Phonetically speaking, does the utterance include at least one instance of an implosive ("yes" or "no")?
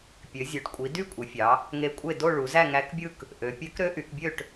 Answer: no